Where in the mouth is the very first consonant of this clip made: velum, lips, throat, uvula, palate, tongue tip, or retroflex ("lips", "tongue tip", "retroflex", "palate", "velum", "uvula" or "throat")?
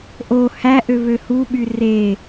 throat